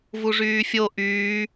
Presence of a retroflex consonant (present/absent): present